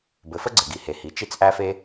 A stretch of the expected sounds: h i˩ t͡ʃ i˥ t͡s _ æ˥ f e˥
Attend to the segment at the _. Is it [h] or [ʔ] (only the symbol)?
ʔ